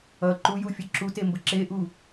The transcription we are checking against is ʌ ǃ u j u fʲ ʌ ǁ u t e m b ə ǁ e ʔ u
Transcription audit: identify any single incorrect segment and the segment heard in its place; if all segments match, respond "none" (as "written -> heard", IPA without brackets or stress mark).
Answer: none